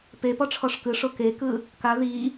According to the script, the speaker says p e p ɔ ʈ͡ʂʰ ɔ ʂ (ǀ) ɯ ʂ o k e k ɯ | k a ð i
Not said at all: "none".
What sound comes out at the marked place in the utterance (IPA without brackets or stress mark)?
k